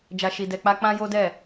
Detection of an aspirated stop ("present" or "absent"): absent